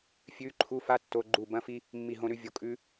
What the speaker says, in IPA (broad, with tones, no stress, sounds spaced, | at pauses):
fʲ ʉ˧˥˧ ǃʰ u˧˥˧ f a˥ tː o˧˥˧ ɡ͡ǃ u˥˩ b ɐ̃˥ f i˥ | mː i˥˩ ɦ õ˥ ɾ ʉ˥ vʲ o˧˥˧ kʼ ʉ˥